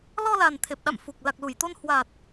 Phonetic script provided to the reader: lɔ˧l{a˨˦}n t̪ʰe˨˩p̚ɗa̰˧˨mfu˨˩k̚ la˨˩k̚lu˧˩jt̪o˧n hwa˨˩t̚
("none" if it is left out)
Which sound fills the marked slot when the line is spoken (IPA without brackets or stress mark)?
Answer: a˨˩